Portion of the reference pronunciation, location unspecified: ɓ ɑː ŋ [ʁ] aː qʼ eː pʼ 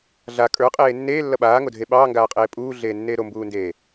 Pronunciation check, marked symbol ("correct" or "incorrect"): incorrect